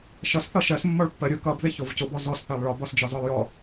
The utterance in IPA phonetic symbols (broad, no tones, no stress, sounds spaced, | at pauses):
ʃ ʌ s θ ʌ ʃ ɜ s mː ɒ ɭ pː ɜ ɾʲ ʊ k ʌ b ð ɪ ç ʊ v c ʊ b ɔ z ɔ s θ ɜ lˠ ɭ ɒ b ɒ s d͡ʒ ɒ z ɒ lˠ j ɔ